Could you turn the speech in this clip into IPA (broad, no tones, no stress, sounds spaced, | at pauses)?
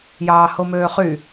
j ɑː h o m øː χ y